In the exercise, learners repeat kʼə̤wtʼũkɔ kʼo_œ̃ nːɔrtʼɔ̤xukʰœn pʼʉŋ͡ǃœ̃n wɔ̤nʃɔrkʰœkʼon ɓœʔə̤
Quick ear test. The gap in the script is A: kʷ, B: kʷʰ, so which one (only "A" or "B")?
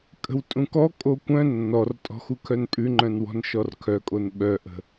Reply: A